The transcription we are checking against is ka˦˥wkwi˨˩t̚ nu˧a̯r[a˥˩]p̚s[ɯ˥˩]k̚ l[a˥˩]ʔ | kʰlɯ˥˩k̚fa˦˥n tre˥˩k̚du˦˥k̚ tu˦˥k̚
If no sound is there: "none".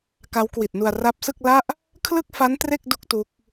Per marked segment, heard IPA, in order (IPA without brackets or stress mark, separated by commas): a˦˥, ɯ˥˩, a˥˩